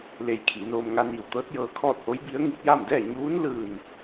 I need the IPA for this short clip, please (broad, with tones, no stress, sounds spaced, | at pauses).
l e˧ j kʰ iː˩˧ n oː˧ m ŋ a˧ n iː˧˩ w t̪ ɤː˧˥ t̚ j ɤː˧ kʰ ɔː˥˨ t̚ h o˧˥ j b i˧˥ ə̯ ŋ i˧ p̚ j a˥˨ m d ɛː˥˨ ɲ uː˧˥ n l ɯː˧˩ n